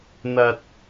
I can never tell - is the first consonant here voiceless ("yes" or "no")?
no